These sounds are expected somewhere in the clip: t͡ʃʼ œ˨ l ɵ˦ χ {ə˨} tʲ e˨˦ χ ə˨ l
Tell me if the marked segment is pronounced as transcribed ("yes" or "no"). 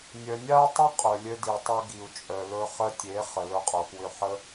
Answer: no